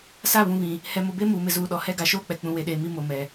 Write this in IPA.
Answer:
s a˦˨ β ũ˨ β ĩ˨ | h ɛ˨ m ʊ˨ b e˦ m uː˨ m ɪ˨ z uː˨ ɗ ɔ˨ h ɛ˦ ɡ a˨ ʃ oː˦ k͡p ɛ˨ k͡p ũ˨ w e˨ ɗ eː˨ m i˦ m o˨ m ɛ˨

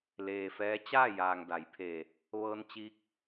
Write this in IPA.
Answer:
l eː˩ f ɛː˧˥ t͡ɕ aː˥˨ j aː˩ ŋ d a˩˧ j pʰ eː˧˩ | ʋ ɤː˧ n t͡ɕ iː˧˥ k̚

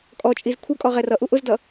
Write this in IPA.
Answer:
kʼ ɔ t͡ʃʼ i z kʷʰ ʌ kʼ ɔ ʁ ɛ r ʌ ʔ u ʔ ʊ z d ʌ

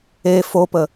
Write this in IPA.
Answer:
e f o p ə

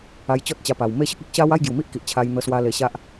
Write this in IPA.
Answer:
a˧ j t͡ɕ ɔ˦ t̚ t͡ɕ a˧ p a˨˩ w m e˥˧ ɕ ə˦ k̚ e˦ k̚ ɕ a˦ w a˥˧ j ɡ j u˨˩ m i˦ ʔ k i˨ ʔ t͡ɕʰ a˧ j n̪ ə˧ s w a˧ l e˧ ɕ a˦ ʔ

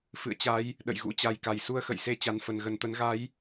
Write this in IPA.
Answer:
f ɨ̰˧˨ ə̯ t͡ɕ a˨˦ j | ɗ ə̰˧˨ j ɣ ṵ˧˥ t͡ɕ a˨˩ j k a˧˩ j s u˧ ə̯ x ə̰˧˨ j s e˧ t͡ɕ a˨˩ n f ə˧˩ n ɣ ə˨˩ n t̪ ə˨˦ n ɣ a˨˦ j

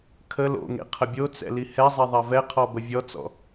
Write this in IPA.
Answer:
kʰ ə l o̰ ŋ ḛ qʰ ə bʲ o t͡s ɛ̰ l i h ɛ zˤ e ðˤ ɛ v ɛ qʰ ɔ b ə vʲ ɔ t͡s ɔ̰

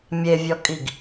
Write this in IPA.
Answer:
mʲ e vʲ ɔ kʼ i ɡ

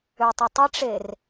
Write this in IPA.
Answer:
ø tˤ ə tˤ ɪ ʈ͡ʂ e r

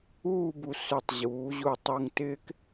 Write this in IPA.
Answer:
uː˥˧ b u˧ s ʏ˧˩ tˤ ʑ uː˩˧ ʑ u˧˩ tˤ u˧ ŋ t ɪː˥ k

